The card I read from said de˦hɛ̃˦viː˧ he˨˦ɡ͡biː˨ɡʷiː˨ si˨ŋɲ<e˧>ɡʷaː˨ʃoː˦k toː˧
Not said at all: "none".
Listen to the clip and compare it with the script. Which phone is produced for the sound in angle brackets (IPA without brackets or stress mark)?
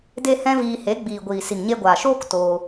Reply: e˧